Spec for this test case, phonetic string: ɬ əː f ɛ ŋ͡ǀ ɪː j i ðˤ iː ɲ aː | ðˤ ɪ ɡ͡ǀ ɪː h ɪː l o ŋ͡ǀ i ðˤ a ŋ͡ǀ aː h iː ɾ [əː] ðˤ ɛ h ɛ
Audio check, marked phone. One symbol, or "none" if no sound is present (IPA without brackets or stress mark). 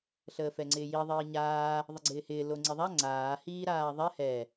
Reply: aː